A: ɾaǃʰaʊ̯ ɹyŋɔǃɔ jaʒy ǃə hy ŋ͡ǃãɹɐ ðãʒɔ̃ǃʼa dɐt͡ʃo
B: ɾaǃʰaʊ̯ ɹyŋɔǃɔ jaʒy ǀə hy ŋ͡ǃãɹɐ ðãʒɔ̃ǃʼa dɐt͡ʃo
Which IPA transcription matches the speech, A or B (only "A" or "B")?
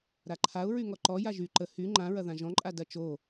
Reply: A